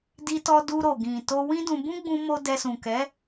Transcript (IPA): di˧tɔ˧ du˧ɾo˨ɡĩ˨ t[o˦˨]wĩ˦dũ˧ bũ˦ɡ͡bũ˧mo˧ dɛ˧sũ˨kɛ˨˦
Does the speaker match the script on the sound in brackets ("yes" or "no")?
no